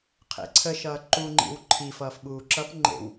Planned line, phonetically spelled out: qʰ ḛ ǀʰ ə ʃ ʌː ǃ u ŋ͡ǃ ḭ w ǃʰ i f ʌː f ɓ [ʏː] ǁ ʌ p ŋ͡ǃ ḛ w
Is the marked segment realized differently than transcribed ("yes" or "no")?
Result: yes